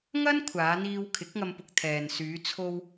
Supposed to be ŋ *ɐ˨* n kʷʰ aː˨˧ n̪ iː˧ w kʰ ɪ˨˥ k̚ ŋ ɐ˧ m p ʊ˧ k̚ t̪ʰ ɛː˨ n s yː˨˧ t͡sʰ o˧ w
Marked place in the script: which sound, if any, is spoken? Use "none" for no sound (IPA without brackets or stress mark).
ɐ˥